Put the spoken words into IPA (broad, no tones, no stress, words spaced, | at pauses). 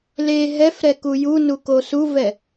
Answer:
le ɦɛfɾɛku junuko suvɛ